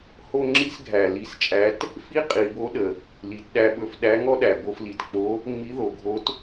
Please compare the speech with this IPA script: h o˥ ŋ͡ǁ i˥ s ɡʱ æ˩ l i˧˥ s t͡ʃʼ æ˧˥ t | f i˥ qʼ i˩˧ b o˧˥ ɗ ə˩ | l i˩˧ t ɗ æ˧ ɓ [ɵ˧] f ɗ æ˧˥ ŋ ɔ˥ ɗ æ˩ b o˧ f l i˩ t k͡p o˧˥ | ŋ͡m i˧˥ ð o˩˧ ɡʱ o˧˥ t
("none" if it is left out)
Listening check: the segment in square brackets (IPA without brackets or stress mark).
ɵ˧